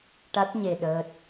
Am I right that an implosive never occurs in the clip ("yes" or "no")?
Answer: no